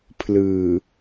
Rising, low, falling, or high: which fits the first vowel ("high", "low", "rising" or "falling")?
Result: low